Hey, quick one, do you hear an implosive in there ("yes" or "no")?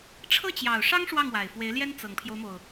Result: no